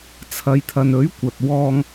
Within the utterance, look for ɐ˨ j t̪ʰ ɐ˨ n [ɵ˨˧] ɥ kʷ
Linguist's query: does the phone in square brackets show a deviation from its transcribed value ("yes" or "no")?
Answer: yes